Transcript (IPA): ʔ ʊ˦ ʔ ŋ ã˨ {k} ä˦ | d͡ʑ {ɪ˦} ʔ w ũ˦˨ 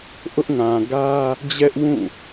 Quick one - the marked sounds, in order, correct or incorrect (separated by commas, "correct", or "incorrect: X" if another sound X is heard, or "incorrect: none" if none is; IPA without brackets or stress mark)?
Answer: incorrect: ɡ, incorrect: ɛ˦